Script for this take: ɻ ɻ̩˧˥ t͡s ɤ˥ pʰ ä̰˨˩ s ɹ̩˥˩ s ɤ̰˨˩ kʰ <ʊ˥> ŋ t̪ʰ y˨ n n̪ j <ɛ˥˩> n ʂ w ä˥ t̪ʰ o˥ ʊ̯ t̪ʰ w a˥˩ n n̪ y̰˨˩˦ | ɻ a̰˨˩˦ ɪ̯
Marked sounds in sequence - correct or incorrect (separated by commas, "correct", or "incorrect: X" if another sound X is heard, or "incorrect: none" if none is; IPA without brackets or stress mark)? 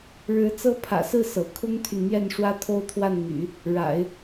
correct, correct